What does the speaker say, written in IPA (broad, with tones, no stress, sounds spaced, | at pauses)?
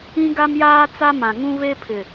ĩ˦ ɡ a˦ m j aː˦ t͡s a˦ m ã˨ ŋ ũ˦ β e˦ pʰ ɪ˨